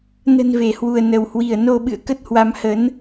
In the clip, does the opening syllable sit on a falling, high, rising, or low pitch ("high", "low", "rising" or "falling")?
low